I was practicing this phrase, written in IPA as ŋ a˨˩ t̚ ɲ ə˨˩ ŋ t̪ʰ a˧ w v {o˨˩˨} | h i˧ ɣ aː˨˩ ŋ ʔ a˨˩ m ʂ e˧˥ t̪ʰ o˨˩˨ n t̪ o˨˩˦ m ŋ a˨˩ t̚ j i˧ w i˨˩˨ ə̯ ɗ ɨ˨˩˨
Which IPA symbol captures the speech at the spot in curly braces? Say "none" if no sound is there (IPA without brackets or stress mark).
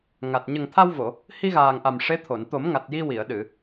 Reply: o˨˩˨